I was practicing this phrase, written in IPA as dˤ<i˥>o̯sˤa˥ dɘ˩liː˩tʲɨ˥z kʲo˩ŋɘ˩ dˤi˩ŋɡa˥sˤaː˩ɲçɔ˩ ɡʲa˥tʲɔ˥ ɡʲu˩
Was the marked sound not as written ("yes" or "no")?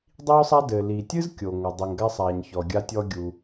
no